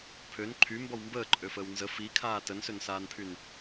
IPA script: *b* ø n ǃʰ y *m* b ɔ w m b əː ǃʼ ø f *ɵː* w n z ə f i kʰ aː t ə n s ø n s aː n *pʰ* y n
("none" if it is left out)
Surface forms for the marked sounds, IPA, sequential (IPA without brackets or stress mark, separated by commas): pʰ, m, əː, pʰ